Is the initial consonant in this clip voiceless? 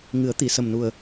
no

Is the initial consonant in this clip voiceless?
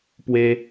yes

